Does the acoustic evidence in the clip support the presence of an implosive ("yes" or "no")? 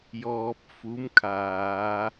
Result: no